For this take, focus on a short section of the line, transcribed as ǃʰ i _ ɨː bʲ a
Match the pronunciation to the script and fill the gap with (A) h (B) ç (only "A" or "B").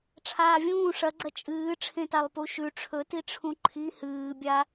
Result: A